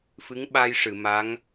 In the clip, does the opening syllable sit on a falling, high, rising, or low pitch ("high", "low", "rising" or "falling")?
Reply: rising